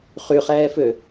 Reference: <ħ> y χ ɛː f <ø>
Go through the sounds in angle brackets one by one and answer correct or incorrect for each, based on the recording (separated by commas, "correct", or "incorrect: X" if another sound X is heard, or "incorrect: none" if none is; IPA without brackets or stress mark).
incorrect: χ, correct